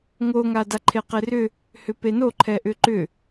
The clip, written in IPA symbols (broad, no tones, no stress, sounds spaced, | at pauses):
ŋ o ŋ a d a ǃʰ e q e r ʏ | h ʏ p e n o ǃʰ ɛ ʔ ʏ ǃ ʏ